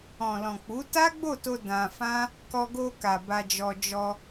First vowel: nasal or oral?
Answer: nasal